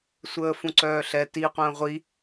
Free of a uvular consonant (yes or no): no